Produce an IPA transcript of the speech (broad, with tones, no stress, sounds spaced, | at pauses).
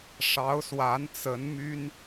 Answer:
ʂ ɑ˧˥ ʊ̯ s w a˧˥ n t͡s ə˧˥ n m y˥ n